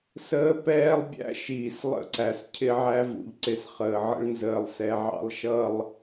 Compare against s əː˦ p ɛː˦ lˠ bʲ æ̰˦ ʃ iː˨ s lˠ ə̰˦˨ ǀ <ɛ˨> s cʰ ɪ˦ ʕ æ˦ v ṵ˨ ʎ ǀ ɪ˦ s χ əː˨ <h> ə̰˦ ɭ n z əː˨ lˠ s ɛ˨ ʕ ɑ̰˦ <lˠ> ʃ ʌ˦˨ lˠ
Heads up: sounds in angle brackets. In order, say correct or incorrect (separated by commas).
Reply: incorrect, incorrect, correct